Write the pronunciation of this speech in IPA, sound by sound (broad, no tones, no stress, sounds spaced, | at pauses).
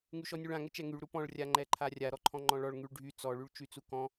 ŋ y ʃ ɔ nʲ u ɭ ã ŋ ɛ t͡ʃ ɛ ŋ y ɭ ɾ u p ɔ̃ ɭ rʲ a ŋ͡ǃ ɛ ǃʰ a rʲ a ɾ ɔ ǃʰ ɔ̃ ŋ͡ǃ ɔ̃ ɭ ɔ ɭ ŋ y ɭ ɖʱ y t͡s ɔ ɭ y ɭ t͡ʃ y t͡s u k ɔ̃